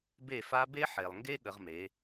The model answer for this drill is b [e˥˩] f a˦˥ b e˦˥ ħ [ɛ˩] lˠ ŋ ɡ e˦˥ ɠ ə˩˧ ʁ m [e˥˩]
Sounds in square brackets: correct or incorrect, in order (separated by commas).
correct, incorrect, incorrect